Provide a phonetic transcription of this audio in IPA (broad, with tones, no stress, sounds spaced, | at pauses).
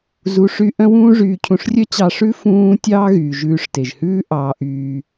z u˧ ʂ y˦ ʔ œ̃˦ w ũː˦ ʐ yː˧ cʰ ũ˧ ʂ rʲ œ˦ t͡ɕ ɑ˧ ʂ ʉ˦ f ũː˦ tʲ ɑː˦ ɣ yː˨ ʒ ʉː˧ ʂ t e˨ ʒ h ʉː˦ ʔ ɑː˧ ʔ yː˧